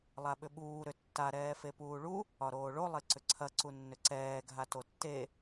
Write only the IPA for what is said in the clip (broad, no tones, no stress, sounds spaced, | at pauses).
lˠ a ɓ ʏ ɓ uː ɾ ʏ tː a ɾ ɛː f e p uː ɭ u | ɒ ɾ oː ɭ o lˠ e ǀ ʏ ǀʰ ɐ ǀ u nː ʏ ǀ ɛː ɡʱ a t o tː e